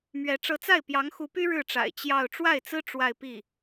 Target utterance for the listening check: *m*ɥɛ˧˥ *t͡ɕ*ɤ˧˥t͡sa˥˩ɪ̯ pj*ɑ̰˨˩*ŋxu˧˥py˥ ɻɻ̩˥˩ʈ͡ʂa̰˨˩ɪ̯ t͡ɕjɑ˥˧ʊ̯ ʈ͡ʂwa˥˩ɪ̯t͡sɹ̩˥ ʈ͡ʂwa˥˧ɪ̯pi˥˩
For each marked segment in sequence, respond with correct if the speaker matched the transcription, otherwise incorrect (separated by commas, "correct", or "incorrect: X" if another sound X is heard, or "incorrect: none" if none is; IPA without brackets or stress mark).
correct, incorrect: ʈ͡ʂ, incorrect: ɑ˧˥